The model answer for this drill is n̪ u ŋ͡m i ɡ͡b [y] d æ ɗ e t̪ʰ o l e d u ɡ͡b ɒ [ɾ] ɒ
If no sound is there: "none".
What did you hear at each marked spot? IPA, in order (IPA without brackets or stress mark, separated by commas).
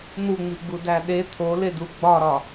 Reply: u, ɾ